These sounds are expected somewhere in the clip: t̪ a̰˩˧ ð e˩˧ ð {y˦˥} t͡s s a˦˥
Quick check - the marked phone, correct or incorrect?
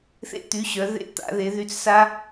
incorrect